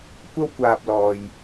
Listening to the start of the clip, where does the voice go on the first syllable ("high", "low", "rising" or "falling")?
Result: high